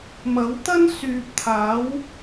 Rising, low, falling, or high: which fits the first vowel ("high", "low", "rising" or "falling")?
rising